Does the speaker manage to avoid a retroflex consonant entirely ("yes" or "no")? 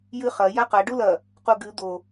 no